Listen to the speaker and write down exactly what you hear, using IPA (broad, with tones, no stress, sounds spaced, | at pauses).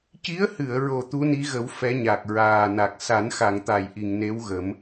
c i˧˥ ə̯ h ɨ˨˩˨ ə̯ ɹ o˨˩ t̪ u˧˥ n i˧˥ ɣ ə˨˩˦ w f ɛ˧˥ ɲ a˨˩ k̚ ɹ aː˨˩ n a˨˩ k̚ s a˨˩˦ n x a˨˩˨ ŋ t̪ a˨˩˨ j ʔ i˨˩˨ ŋ n e˧˥ w ɣ ə˨˩˦ m